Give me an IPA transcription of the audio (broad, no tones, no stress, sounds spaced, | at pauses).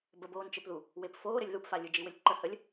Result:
b ə b oː n t͡ʃ ɘ p ð u | w e p f oː ɾ ɘ lʲ ð u p f a lʲ ɯ d͡ʒ i w ɘ lʲ ǃ ə h ə lʲ